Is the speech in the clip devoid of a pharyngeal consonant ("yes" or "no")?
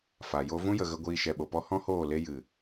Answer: yes